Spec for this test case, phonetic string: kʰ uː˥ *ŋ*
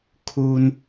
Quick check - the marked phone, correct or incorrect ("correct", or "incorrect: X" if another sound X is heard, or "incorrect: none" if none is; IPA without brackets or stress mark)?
incorrect: n